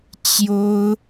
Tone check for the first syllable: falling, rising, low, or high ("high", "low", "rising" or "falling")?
high